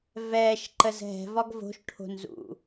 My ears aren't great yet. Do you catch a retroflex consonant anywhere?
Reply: yes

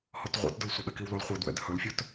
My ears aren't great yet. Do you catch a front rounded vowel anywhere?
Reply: no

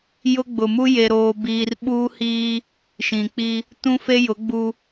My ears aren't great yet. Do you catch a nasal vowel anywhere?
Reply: yes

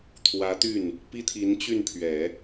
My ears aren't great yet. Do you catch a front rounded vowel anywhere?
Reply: yes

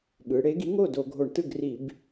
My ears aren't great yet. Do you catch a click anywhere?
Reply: no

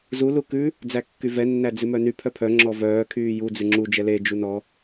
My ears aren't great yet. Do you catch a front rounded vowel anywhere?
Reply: yes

